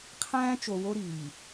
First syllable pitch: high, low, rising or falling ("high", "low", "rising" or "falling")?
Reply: high